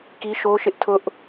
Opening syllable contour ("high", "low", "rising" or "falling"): high